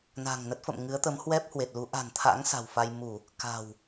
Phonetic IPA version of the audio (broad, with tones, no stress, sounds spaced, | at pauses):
n a̤˨˩ ŋ n ə˦˥ t̚ f ə̰˧˨ m ŋ ɨ˨˦ ə̯ t̪ ə˨˦ m h w ɛ˦˥ p̚ h w e˨˩ t̚ l u˨˦ ʔ a̤˨˩ n t̪ʰ a̰˧˥ ŋ s a̤˨˩ w f a˧ j m u˧˩˨ | k a̤˨˩ w